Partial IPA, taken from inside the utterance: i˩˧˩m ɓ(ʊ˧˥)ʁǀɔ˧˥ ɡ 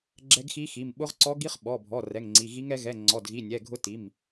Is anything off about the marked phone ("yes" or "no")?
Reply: no